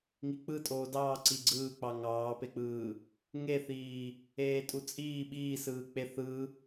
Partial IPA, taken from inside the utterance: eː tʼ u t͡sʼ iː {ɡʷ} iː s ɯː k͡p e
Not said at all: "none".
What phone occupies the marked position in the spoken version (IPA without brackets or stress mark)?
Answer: ɓ